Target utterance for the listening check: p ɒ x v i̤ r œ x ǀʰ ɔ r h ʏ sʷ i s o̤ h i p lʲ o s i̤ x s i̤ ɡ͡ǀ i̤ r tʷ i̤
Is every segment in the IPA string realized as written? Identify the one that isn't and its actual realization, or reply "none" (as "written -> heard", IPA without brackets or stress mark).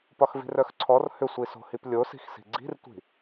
none